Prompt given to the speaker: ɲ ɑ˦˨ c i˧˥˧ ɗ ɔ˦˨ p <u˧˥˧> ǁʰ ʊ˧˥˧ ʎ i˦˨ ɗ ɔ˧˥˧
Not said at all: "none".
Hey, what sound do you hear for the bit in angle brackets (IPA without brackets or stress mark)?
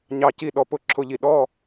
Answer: ʊ˧˥˧